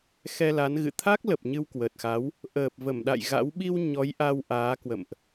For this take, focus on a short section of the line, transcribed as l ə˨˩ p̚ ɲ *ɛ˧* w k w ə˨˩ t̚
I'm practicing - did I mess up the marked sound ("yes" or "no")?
yes